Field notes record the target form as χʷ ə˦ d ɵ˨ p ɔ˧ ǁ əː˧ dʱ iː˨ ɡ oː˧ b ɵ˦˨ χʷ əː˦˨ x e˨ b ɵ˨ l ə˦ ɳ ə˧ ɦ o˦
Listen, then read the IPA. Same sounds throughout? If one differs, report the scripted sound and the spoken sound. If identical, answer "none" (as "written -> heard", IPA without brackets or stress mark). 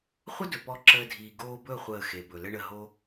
none